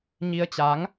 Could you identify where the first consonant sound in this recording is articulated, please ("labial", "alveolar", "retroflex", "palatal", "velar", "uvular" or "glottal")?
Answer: palatal